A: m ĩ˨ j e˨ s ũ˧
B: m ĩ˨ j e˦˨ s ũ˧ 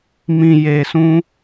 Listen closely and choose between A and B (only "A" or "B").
A